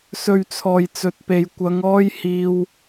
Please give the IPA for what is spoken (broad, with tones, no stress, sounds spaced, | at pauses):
s ɵ˨ ɥ t͡sʰ ɔː˨˩ j t͡s ɵ˨ t̚ p e˨ j kʷ ɐ˨˧ ŋ ɔː˥ j h iː˧ w